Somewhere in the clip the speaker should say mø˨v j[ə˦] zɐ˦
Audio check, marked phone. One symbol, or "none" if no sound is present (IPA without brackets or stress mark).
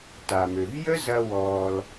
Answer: ə˦